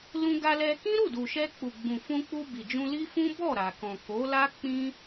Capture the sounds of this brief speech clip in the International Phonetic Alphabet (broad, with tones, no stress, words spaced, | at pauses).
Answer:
lũ˧ɡa˧lɛ˧kĩ˦ ɾu˦˨du˨ʃɛ˧k͡pu˨ ɡ͡bũ˨fũ˧k͡pu˧ bi˨d͡ʒũ˧ li˦fũ˦ bɔ˦˨ɾa˨kɔ̃˨ ko˨˦la˦ k͡pĩ˦